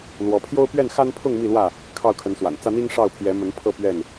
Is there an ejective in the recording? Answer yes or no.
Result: no